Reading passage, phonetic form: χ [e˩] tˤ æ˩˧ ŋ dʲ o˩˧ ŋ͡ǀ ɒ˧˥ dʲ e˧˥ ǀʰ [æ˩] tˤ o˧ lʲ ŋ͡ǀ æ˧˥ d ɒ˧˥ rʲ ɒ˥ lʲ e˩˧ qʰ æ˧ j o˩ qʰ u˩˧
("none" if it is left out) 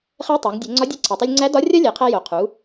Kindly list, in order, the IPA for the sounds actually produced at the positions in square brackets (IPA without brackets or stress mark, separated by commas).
e˧˥, æ˩